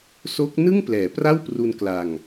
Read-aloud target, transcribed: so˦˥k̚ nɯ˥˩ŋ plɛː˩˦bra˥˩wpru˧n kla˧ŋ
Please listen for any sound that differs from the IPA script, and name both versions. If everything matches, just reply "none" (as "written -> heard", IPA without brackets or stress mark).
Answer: b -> p